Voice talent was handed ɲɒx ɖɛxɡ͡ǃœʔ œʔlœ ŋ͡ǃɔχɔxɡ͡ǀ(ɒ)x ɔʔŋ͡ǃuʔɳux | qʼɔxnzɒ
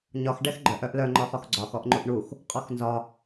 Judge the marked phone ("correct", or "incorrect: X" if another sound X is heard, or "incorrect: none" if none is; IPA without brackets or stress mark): correct